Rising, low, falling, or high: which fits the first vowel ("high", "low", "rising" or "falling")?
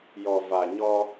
low